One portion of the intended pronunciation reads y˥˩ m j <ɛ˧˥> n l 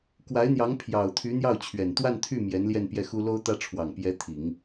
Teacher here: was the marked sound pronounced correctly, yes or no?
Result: yes